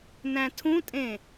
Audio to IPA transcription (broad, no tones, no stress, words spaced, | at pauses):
næ̃tʰũtʼẽ